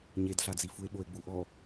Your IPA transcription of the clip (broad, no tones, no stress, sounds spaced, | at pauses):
ɲ e d ɬ a d͡z i f u e̯ ɓ o e̯ ɡ͡b u ʔ ɔ